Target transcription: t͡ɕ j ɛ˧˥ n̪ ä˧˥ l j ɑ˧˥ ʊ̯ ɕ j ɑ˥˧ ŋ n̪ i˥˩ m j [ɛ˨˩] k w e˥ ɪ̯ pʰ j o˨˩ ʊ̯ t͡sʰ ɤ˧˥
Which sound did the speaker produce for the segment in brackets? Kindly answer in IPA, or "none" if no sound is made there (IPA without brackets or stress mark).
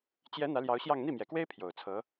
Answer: ɛ˨˩